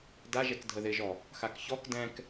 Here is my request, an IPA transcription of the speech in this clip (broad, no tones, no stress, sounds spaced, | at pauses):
d a ʒ ɛ k dʱ ə ð ɪ ʒ ɔ | x a k ç ɔ k d ɛ̃ k